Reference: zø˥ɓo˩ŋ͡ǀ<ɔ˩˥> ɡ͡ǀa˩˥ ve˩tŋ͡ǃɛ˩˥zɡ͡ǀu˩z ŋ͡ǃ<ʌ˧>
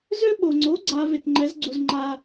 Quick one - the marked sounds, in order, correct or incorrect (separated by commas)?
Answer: incorrect, incorrect